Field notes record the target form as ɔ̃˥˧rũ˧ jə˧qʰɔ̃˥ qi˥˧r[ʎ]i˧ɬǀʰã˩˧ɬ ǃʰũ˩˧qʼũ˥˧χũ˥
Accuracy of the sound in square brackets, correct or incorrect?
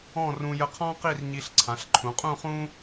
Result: incorrect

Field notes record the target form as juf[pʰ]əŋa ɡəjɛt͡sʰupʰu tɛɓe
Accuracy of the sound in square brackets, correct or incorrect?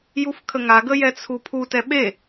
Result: incorrect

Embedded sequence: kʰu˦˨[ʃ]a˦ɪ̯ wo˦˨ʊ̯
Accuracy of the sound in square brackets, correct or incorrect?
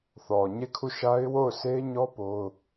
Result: correct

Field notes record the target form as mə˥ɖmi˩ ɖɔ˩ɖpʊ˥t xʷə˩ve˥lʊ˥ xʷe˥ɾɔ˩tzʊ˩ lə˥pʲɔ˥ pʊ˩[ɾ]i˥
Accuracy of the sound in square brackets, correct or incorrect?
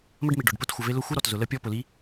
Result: incorrect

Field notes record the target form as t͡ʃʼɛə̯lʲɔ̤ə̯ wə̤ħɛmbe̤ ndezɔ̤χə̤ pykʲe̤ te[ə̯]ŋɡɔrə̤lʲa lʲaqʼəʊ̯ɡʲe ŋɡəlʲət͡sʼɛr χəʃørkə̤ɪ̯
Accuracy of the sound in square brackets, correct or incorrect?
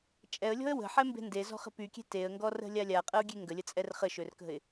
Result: correct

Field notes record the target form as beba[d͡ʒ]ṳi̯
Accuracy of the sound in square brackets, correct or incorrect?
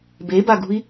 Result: incorrect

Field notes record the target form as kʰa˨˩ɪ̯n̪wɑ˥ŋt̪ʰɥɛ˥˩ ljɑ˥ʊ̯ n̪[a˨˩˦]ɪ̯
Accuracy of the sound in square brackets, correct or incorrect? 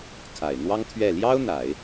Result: correct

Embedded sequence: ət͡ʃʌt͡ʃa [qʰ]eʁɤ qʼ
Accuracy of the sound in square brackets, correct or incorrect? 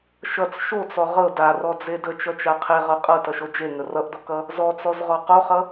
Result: correct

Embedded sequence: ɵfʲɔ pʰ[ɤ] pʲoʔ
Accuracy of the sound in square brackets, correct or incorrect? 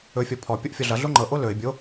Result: incorrect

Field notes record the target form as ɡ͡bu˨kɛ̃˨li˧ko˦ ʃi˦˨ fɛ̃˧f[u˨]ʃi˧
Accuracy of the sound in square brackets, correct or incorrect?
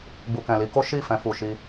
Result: correct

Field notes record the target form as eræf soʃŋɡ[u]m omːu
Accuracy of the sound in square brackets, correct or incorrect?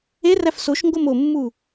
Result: incorrect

